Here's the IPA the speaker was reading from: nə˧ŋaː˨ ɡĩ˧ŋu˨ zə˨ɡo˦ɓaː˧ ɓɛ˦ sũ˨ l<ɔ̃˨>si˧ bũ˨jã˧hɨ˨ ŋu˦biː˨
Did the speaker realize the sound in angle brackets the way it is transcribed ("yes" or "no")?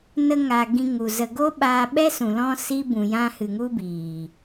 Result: no